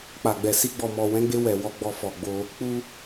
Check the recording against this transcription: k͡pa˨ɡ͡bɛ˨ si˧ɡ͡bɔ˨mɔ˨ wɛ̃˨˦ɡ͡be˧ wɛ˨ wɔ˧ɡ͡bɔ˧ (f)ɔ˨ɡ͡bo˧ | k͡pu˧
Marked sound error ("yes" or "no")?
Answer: no